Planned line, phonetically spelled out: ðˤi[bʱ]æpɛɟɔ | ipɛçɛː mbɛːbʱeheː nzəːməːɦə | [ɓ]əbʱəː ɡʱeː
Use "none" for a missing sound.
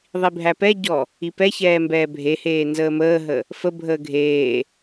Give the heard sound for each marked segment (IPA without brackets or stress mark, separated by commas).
bʱ, f